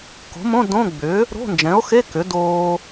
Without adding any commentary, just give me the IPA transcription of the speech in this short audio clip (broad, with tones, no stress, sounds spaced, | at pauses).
k o̤˩˥ m õ˧˥˧ d õ˧˥˧ ɡ͡b ʏ˩˥ | ɾ o̤˧˥˧ n d͡ʒ ɛ̃˩˥ o̯ x e˧˥˧ k ʏ˩˥ d oː˧